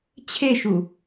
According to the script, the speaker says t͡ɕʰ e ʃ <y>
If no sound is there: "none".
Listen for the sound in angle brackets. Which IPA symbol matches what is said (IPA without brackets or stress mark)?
u